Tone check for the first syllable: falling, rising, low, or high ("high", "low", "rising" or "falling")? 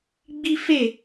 high